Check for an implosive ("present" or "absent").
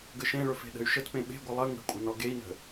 present